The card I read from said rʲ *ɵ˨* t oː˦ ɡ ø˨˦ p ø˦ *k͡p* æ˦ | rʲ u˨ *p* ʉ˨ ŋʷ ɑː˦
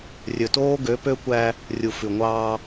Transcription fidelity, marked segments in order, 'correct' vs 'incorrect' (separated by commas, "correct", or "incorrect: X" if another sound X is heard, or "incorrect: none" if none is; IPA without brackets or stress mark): correct, incorrect: kʷ, incorrect: f